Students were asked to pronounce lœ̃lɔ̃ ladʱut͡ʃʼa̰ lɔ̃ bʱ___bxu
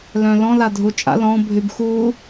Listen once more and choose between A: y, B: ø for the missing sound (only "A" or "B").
A